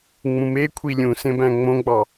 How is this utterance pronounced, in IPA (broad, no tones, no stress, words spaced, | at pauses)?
ŋ͡mũmekʷʰi lʲũsẽ bæ̃ŋ͡mõɡ͡bɑ